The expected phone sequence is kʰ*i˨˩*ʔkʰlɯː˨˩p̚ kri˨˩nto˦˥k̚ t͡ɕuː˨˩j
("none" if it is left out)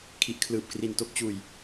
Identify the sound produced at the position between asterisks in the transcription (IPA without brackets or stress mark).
i˨˩